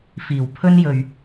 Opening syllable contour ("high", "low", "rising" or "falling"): low